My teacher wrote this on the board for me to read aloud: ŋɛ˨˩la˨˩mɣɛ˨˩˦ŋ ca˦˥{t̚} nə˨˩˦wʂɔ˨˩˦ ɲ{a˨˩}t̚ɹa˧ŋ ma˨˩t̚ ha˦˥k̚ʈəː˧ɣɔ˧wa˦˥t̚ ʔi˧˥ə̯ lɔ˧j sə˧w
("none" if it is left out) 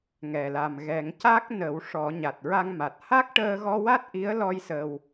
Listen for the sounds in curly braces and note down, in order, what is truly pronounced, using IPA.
k̚, a˨˩

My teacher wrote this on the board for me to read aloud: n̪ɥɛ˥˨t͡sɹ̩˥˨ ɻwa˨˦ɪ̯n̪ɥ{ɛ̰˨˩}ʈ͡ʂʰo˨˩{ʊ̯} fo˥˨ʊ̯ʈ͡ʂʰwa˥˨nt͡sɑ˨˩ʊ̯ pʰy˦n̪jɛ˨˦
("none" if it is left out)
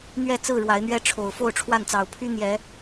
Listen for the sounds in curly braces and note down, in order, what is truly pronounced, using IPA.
ɛ˦, ʊ̯

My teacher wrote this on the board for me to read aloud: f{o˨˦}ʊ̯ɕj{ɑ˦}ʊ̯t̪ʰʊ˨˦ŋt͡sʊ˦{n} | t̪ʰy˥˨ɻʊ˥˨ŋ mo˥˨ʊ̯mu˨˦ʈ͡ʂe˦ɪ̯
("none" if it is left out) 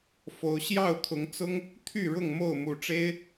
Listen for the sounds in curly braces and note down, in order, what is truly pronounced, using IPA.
o˨˦, ɑ˥˨, ŋ

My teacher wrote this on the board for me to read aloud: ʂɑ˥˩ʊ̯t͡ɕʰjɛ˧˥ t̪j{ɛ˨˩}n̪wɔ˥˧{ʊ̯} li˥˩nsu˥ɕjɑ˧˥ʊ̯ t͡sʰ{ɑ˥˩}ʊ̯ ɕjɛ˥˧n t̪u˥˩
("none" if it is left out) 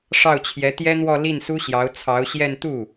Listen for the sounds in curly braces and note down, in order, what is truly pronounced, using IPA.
ɛ˥, none, ɑ˧˥

